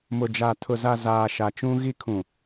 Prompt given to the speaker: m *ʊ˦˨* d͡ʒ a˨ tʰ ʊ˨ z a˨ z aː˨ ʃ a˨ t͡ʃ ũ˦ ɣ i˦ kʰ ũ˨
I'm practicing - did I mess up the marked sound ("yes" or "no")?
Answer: yes